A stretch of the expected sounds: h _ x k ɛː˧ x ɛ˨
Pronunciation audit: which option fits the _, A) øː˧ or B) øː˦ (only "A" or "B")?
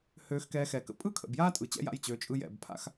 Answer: A